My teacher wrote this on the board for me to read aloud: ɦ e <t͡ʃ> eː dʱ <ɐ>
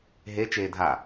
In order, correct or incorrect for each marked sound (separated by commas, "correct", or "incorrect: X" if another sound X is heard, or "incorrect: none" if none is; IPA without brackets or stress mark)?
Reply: correct, incorrect: a